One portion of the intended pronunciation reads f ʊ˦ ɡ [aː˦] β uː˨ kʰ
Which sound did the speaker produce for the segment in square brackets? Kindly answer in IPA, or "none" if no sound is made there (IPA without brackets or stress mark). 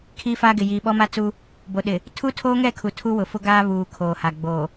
aː˦